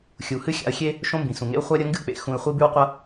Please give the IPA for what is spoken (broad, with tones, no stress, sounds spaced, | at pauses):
xʲ u˩ h ɨ˥ xʲ a̰˧ ə̯ xʲ e˥ | ʃ õ˥ m b ĩ˩ s ũ˩ ŋ ḛ˥ ʊ̯ χʷ a˥ ɾʲ ɐ˥ ŋ ɡ ɨ˥ k͡p ḛ˩ x ũ˧ ɪ̯ χʷ i˥ b ʉ˥ w qʷ ɐ˥